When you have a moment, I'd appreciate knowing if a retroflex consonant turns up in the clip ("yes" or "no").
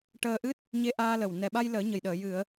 yes